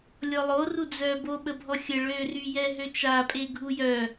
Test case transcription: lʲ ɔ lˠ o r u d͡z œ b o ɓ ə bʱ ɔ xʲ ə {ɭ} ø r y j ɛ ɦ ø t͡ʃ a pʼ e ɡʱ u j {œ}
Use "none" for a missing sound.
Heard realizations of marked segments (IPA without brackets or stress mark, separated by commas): ɭ, œ